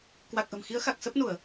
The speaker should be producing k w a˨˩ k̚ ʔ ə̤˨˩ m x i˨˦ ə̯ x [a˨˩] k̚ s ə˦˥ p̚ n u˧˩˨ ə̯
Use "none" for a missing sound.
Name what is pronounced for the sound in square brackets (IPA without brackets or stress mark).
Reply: a˨˩